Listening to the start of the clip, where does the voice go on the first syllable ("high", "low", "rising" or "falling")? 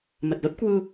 low